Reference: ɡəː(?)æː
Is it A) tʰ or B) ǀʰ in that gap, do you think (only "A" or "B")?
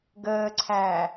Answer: B